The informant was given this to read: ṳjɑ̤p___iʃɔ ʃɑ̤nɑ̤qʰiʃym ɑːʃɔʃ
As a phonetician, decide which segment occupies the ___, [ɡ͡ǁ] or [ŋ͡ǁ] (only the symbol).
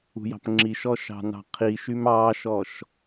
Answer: ŋ͡ǁ